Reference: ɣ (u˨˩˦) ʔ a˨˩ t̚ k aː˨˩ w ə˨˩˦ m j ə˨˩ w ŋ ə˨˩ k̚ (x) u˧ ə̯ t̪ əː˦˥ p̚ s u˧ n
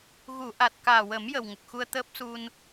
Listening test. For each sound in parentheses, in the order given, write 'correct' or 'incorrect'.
incorrect: u˨˩˨, correct

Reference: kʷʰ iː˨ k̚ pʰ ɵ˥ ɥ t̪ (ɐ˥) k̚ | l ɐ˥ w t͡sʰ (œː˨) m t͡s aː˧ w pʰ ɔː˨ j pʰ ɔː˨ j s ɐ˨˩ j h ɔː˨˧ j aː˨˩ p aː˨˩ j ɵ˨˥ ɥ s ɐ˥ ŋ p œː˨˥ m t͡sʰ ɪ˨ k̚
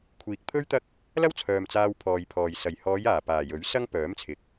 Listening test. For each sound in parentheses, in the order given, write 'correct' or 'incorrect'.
correct, correct

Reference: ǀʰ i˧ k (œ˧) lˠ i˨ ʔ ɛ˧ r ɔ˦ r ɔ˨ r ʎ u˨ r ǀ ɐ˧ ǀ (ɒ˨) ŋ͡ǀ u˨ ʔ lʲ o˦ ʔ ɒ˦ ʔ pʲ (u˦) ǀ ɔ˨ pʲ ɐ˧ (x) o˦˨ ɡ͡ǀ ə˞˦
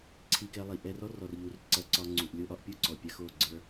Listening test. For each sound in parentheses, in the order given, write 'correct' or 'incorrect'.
incorrect: ɛ˧, incorrect: ɒ˧, correct, correct

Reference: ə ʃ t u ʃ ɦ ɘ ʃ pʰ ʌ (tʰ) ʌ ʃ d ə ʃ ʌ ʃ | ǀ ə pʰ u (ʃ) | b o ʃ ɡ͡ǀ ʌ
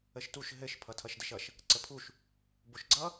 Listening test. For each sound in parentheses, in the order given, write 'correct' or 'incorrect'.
correct, correct

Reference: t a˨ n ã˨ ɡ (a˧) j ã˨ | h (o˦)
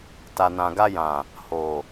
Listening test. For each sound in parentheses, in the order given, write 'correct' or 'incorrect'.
correct, incorrect: o˨

